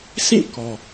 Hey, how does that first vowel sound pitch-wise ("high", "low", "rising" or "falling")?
falling